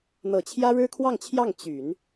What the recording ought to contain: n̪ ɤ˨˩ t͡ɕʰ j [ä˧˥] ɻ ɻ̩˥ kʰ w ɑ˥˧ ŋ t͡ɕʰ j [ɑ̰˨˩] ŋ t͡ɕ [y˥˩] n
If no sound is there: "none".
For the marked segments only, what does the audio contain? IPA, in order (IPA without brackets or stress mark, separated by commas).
ä˥, ɑ˥˩, y˨˩˦